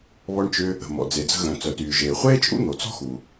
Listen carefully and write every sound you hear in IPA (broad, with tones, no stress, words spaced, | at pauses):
βɔ˧ɳt͡ʃʏ˧ | ə̤˩mɔ̰˩ d͡ze˩d͡zə̤˧ɣœ̃˩ t͡sœ˩tyː˩ʒeː˩ χʷeː˥t͡ʃʼṵ˥n̪o˩ t͡sɔ̤˥xu˩